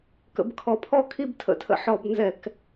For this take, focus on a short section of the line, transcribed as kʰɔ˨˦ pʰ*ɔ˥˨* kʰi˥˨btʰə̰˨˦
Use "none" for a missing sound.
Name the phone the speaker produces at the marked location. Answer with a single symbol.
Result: ɔ˥˨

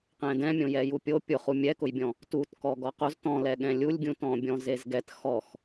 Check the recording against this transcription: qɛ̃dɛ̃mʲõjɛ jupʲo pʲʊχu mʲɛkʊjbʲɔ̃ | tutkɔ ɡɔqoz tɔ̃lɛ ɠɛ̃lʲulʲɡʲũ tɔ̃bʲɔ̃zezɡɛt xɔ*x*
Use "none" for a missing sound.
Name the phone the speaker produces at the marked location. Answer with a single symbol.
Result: x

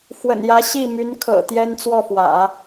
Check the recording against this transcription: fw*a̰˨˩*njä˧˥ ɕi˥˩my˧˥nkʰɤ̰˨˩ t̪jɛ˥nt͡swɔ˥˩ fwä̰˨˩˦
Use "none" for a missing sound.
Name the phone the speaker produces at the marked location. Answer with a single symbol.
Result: ə̰˨˩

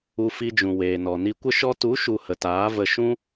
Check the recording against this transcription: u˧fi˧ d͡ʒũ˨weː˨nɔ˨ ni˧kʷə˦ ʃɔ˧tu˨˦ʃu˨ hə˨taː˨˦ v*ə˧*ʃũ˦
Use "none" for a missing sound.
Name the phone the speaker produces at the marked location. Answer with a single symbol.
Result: ə˧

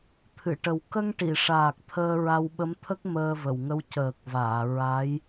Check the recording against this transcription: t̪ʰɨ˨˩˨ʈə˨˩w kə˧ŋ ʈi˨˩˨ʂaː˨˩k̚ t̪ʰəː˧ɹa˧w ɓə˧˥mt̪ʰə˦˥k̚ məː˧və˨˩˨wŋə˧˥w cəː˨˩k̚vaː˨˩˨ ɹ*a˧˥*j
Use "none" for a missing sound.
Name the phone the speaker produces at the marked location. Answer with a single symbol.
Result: a˧˥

